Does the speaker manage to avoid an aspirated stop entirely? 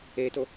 yes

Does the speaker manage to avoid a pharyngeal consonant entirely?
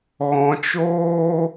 yes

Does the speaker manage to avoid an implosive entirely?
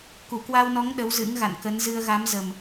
no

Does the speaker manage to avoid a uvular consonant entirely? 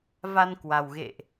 yes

